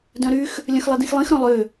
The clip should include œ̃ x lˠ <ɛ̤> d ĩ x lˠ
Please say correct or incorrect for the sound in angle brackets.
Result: incorrect